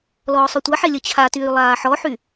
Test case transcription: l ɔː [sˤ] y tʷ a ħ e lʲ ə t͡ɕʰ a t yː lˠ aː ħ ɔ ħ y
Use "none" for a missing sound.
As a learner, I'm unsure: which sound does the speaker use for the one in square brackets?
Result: sˤ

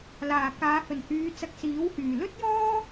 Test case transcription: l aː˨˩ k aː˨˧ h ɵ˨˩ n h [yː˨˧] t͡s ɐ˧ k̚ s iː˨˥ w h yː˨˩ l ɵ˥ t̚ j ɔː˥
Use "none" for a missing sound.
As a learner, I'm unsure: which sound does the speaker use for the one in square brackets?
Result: yː˨˧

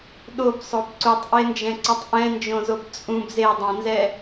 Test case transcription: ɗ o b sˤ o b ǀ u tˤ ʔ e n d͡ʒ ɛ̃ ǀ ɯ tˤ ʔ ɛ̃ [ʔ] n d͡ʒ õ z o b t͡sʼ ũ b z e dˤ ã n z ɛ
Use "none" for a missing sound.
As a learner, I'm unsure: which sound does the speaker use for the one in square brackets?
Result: none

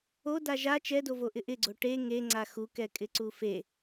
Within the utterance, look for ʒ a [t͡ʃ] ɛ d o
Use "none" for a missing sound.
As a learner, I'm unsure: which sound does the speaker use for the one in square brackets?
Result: t͡ʃ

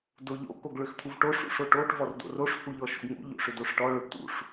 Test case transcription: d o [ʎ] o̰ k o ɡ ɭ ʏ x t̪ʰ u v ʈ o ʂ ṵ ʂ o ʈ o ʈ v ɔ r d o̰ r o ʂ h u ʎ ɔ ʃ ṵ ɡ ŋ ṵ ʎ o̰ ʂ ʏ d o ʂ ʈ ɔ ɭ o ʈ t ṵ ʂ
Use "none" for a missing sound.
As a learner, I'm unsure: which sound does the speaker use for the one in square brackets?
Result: ʎ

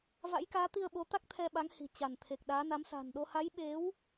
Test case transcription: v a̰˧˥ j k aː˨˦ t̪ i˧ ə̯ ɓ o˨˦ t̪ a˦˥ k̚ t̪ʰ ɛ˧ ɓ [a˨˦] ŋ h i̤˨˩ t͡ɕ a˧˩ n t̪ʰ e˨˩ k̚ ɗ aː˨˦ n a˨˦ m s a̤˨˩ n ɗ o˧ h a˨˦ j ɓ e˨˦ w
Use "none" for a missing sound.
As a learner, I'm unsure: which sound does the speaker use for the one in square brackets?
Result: a˨˦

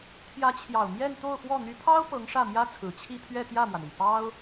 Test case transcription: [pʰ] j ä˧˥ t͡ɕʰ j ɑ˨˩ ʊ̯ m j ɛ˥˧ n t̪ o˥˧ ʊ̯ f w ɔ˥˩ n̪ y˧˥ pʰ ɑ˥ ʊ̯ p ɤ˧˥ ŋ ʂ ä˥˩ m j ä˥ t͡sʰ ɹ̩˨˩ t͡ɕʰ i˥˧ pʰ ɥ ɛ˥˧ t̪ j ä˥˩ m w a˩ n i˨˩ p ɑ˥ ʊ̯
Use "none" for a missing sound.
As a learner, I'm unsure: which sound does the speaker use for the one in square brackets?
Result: t̪ʰ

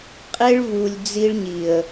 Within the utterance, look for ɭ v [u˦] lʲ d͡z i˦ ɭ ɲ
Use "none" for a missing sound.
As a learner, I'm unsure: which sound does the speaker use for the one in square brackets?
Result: u˨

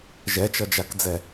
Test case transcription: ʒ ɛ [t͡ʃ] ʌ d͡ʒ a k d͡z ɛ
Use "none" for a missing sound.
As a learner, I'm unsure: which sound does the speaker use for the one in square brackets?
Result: t͡ʃ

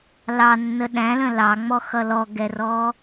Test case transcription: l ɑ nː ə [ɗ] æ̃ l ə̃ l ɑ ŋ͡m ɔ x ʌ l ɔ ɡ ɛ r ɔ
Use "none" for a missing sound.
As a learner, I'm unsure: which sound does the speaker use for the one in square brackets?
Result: ɗ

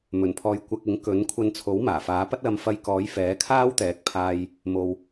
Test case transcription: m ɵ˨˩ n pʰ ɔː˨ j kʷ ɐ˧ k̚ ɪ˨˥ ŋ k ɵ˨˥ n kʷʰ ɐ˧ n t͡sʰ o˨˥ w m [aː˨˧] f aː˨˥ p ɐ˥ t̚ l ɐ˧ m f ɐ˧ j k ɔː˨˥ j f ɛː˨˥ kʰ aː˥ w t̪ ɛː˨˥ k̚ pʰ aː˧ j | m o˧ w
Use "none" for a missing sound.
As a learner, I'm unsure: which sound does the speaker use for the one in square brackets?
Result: aː˨˩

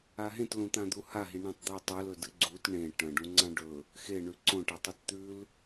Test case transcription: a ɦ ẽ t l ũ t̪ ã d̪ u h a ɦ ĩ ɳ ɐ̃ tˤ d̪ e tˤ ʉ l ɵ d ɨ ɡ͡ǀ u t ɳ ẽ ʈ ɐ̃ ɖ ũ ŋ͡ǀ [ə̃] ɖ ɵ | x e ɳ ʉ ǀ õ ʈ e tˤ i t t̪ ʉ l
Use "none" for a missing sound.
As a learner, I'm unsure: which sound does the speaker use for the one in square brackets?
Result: ã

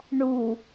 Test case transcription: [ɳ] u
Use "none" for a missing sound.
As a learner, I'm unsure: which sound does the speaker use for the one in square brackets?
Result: ɳ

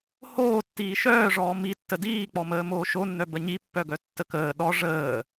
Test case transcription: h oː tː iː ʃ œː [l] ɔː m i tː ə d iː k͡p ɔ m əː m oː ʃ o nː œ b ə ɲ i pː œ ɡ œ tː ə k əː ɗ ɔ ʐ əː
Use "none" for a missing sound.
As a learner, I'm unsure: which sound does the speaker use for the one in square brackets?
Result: ʐ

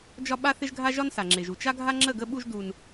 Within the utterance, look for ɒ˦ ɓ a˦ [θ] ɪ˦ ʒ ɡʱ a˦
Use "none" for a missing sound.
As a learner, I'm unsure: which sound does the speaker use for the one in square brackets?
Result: θ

